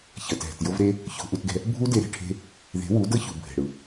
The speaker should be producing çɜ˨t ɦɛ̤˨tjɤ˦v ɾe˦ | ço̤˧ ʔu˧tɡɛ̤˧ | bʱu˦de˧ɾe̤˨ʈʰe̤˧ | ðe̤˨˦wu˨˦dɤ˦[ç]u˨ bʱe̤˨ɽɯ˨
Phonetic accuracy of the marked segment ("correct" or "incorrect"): correct